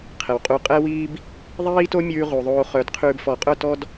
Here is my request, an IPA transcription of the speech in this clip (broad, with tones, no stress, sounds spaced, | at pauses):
qʰ ɛ˨ w qʼ u˧ qʼ ɛ˦ w iː˦ b | ðˤ iː˦ t o˦ mʲ ʉː˧ ʁ u˨ ðˤ oː˧ χ œ˨˦ d qʰ ʉː˧ b f ɔ˨˦ qʼ œ˦˨ t ɔ˦ d